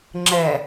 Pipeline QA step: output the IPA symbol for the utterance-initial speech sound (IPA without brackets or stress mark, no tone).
ŋ͡ǁ